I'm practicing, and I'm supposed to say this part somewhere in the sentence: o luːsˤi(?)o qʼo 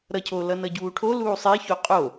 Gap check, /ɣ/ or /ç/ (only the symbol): ç